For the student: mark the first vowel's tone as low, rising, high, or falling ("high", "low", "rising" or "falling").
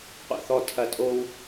low